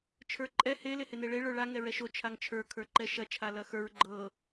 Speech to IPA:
t͡ʃʰ ə˞ ǃʼ ɛ h e l e h e n e ɭ e ɭ ə˞ ɭ a ŋ ɛ ɹ ɛ ʃ o t͡ʃʰ a ŋ t͡ʃʰ ə˞ kʰ ə˞ ǃ ɛ ʃ ɐ t͡ʃʰ a l ɐ x ə˞ ɹ ɡ͡ǃ ɤ

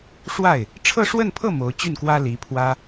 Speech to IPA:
ʂ w a˥˩ ɪ̯ | ʈ͡ʂʰ ɤ˥˧ ʂ w ə˥˧ n pʰ ɤ˥˩ m o˧˥ ʊ̯ t͡ɕ y˥˩ n k w ä˥ l i˧˥ pʰ w ä˥

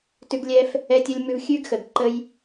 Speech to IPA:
t ʉ˦ ɡ lʲ ɛ˦ f | ɛ˦ tʲ ə˦ lʲ m ʉ˦ v xʲ ʉ˦ ɡ x ə˨ ɡ ǃ ə˦ j

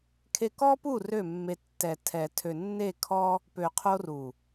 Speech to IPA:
kʰ e˧ k ɔ˦ p u˦˨ r ø˦˨ mː e˧ tː ɛ˨ tʰ ɛ˨ tʰ ø˨ nː e˦˨ kʰ ɔ˦ | p ø˨ qʰ o˧ r u˨

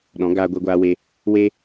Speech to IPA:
ɗ ɔ̃˨˦ ɡ aː˧ ɡʷ ɛ˧ ɡʷ aː˧ w e˧ | w e˦

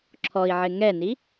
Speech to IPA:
ǁʰ ɔ i̯ ʕ ɪ ŋ ɛ n i

